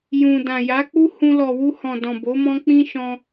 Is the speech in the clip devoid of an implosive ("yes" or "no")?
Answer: yes